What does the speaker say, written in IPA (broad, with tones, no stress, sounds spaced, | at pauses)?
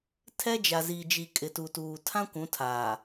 tʰ ɛ˦ d͡ʒ a˨ z i˨ d͡ʒ i˨ kʼ ɪ˨ t u˨ t uː˨ tʰ ã˦ kʷ ũ˨˦ tʰ aː˨